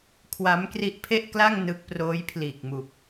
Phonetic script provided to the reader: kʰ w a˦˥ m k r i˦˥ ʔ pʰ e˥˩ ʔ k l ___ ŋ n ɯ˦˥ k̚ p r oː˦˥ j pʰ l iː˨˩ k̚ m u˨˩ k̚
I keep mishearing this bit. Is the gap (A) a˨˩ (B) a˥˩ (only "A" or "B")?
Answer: B